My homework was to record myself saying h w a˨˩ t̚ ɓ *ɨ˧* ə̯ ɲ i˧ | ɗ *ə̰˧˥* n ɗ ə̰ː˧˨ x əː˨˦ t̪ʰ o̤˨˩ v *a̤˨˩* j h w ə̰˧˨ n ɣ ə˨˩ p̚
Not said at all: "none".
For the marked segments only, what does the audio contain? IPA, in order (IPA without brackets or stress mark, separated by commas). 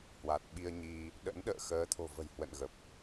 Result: i˧, ə̰˧˥, ə̤˨˩